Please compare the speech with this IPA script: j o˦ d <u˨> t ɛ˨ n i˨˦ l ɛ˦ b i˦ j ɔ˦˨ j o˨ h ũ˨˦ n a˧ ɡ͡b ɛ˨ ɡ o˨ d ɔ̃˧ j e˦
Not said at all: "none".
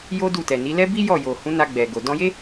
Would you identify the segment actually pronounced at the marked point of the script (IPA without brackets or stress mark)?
u˦˨